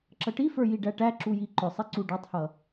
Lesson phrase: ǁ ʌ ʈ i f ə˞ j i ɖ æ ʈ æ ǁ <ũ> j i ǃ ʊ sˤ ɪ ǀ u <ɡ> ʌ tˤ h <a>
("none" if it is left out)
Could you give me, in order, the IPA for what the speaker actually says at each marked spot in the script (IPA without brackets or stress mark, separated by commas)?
u, ɖ, ʌ